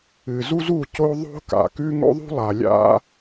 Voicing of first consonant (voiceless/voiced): voiced